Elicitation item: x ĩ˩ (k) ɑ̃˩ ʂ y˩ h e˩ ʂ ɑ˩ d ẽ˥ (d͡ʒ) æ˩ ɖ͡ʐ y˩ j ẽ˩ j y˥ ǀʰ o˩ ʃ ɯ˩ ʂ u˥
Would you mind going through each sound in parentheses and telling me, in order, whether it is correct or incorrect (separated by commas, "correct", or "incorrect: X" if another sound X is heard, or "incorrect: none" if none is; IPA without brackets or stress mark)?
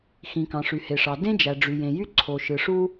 correct, correct